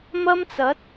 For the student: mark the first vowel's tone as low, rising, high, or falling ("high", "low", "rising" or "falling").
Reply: high